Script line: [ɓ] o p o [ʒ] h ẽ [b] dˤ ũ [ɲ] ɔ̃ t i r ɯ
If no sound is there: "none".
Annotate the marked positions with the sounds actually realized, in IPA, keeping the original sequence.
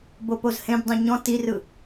b, z, b, ɲ

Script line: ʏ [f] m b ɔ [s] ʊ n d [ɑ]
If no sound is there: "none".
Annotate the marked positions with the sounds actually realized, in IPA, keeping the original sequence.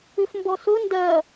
f, s, ɐ

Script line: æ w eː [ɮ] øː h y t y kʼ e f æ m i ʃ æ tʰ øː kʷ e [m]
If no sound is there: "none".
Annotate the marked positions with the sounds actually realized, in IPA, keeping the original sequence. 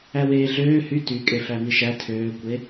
ɮ, none

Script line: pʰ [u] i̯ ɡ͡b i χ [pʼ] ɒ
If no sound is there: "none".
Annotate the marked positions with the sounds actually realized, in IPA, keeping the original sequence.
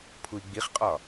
u, qʼ

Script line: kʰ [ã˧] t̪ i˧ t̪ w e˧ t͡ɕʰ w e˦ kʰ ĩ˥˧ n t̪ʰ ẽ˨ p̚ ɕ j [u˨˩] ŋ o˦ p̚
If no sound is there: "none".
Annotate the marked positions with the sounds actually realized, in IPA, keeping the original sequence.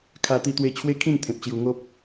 a˧, u˧

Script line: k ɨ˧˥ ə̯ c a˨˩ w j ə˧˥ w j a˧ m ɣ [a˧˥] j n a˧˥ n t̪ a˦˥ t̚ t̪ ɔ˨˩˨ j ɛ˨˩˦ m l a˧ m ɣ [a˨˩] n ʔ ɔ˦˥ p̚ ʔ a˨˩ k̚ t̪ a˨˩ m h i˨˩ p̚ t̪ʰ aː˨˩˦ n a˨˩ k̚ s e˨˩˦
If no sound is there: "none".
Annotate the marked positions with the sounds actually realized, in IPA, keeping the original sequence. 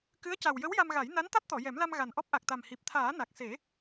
a˨˩˦, a˨˩

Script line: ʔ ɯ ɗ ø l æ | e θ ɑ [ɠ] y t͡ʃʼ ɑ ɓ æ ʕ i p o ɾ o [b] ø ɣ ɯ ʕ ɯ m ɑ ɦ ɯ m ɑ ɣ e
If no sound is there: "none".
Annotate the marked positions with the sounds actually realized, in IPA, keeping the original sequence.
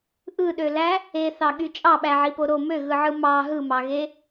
ɠ, m

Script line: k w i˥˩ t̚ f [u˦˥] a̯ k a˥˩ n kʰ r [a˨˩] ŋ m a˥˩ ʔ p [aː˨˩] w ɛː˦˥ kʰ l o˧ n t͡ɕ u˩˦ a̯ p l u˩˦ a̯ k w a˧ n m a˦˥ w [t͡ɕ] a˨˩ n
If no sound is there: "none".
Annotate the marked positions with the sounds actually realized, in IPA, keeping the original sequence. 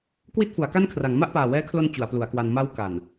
u˩˦, a˩˦, aː˨˩, k

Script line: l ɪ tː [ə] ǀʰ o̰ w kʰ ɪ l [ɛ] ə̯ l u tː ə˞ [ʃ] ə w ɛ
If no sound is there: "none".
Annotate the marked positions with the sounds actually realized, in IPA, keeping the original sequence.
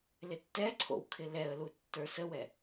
ɛ, ɛ, s

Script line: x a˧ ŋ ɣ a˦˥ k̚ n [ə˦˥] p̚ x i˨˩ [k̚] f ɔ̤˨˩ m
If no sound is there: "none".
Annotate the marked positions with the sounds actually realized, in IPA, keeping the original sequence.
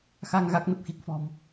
ə˨˩, k̚

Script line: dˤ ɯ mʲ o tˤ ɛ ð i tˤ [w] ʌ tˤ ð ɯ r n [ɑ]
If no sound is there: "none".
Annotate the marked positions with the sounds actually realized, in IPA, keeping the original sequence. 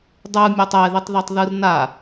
ð, a

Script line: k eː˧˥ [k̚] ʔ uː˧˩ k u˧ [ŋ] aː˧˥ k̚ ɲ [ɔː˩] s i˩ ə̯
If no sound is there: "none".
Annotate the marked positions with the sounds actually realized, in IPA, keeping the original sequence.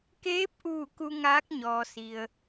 p̚, ŋ, ɔː˩

